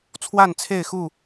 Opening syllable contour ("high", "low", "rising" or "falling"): falling